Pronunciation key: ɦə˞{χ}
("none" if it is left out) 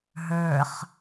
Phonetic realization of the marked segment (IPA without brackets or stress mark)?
χ